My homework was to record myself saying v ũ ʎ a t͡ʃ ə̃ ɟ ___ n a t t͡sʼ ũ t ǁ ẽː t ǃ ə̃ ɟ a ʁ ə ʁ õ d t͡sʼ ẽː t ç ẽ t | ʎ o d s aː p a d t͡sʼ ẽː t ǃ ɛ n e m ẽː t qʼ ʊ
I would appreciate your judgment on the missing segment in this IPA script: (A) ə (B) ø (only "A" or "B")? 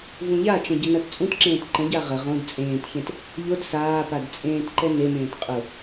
A